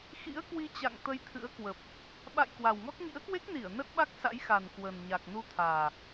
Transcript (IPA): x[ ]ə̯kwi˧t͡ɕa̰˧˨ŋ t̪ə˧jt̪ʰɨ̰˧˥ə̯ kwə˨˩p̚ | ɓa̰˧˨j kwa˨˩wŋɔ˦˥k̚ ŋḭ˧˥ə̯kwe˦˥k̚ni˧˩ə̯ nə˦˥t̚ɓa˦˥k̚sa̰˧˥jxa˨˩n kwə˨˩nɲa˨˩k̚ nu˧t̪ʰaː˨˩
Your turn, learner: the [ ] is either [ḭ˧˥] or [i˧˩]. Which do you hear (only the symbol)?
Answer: ḭ˧˥